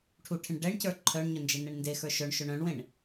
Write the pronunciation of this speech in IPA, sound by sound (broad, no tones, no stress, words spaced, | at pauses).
ʈʰuʈʰẽɳ ɖɛɳcə˞ ǃʰœɳɲœnd͡ʒenɛɳ ndexə˞ ʃœɳʃœɳ œ̃ɳwẽɳ